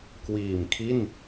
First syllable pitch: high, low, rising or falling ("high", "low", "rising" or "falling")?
low